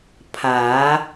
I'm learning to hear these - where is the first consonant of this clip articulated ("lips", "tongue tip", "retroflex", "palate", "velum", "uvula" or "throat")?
lips